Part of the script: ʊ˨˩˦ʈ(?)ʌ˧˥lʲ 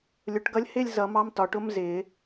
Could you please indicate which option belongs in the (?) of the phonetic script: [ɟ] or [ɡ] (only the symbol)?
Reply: ɡ